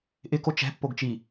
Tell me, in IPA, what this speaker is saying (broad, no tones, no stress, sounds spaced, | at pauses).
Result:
ʔ ɪ k o t͡ʃ ɛ̤ pː o ɡ t͡ʃ i